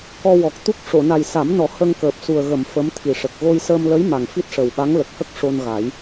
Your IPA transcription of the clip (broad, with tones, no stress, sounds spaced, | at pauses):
k ɔ˧ w ɔ˨˩ k̚ t̪ u˦˥ k̚ ʂ o˨˩˨ n a˨˩ j s a˨˩˦ m n ɔ˨˩˦ h ə˧ ŋ k əː˨˩ p̚ s u˨˩ ə̯ ɣ ə˨˩˨ m f ə˧˥ m t̪ʰ i˨˩ ʂ ə˨˩ k̚ ɣ o˧ j s əː˧ m l ə˧˥ j m a˨˩ ŋ f i˦˥ t̚ ʂ ə˨˩ w ɓ a˧˥ ŋ l ə˨˩ k̚ h ə˦˥ k̚ ʂ o˧ n ɣ a˨˩˦ j